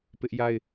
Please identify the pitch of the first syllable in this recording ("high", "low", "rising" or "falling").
high